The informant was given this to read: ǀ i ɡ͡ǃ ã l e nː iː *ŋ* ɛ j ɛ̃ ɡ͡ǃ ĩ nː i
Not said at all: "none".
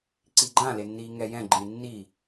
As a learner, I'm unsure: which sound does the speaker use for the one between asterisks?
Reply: ŋ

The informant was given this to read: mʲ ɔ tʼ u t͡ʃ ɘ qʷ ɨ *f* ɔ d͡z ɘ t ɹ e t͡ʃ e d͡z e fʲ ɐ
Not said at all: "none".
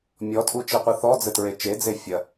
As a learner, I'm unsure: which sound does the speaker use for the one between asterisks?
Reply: θ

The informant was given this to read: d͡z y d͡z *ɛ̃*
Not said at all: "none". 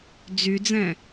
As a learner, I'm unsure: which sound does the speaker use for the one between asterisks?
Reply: ɛ̃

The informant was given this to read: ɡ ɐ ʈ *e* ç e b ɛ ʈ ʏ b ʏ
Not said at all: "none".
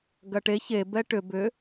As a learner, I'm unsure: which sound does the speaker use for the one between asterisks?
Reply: e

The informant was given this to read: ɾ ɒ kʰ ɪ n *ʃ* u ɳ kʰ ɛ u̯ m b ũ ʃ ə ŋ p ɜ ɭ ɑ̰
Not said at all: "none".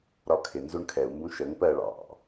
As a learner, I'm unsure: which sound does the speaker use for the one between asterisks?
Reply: z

